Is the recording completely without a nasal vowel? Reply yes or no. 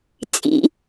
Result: yes